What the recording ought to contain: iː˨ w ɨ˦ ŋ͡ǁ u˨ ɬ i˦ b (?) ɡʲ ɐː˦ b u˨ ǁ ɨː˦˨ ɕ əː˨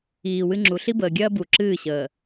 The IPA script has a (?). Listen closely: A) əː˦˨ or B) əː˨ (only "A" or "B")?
B